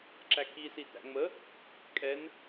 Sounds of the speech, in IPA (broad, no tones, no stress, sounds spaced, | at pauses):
ǁ æ k i s i t æ̰ ŋ͡m ə | kʼ ɛ n